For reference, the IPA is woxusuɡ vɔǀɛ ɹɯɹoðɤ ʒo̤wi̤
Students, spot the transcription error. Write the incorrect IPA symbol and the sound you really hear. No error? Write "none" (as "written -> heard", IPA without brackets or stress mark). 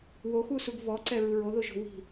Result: ɤ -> o